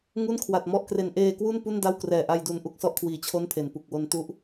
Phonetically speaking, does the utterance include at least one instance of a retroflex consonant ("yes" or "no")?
no